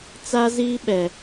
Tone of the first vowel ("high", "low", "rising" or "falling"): high